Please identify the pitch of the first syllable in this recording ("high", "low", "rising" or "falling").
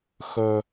high